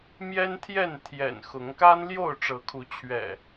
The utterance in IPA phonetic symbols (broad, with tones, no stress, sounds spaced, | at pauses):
m j ɛ˦ n t̪ʰ j ɛ˥˨ n t̪ʰ j ɛ̰˨˩ n x ʊ˨˦ ŋ k a˦ n l j o˥˨ ʊ̯ ʈ͡ʂ ɤ˨˦ kʰ u˨˦ t͡ɕʰ ɥ ɛ̰˨˩